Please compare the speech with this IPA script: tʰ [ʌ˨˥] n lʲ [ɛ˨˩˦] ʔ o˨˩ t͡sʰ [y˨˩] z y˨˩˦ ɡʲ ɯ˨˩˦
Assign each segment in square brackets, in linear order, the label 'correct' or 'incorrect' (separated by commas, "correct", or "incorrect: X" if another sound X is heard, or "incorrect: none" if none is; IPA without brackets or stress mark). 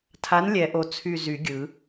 incorrect: a˨˥, correct, correct